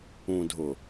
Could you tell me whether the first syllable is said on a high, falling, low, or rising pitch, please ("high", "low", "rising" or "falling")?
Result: low